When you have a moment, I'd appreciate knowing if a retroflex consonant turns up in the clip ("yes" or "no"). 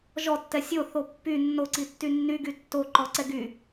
no